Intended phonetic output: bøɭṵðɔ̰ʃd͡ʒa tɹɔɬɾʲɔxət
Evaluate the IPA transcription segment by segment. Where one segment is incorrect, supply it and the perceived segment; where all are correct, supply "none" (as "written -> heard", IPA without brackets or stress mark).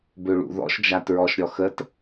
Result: ɬ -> ʃ